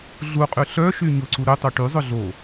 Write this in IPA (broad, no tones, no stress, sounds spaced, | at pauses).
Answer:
ɮ u qʼ y ɬ œ ʃ y ɲ ʊ ǀ u ɾ ʏ tˤ o ʈ y zˤ ʊ ɮ o